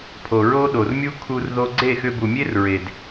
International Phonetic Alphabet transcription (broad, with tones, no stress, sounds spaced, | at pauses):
pʰ o˨ ɹ o˦ ɗ o˨ r mʲ u˦ kʰ u˧ r ð o˧ ɡ͡ǀ e˦˨ x ʏ˧ b u˨ mʲ e˦ r ɹ e˨ d